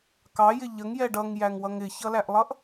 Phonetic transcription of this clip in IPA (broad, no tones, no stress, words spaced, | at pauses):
kɑjɪ ʎəŋjɛ ɖʌŋjæŋwʌŋ ɪçʌlæʔlˠʌʔ